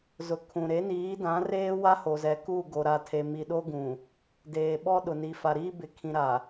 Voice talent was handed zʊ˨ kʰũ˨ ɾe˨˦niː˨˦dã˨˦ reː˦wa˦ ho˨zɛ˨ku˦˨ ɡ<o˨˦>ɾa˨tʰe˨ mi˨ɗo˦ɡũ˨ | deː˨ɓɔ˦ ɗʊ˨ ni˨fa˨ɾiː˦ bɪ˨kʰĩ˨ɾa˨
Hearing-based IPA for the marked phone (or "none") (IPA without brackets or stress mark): o˨